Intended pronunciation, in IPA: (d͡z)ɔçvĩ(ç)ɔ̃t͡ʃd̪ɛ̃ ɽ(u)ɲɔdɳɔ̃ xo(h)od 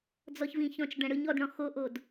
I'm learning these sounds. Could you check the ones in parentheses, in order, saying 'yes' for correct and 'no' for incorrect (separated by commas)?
yes, yes, no, no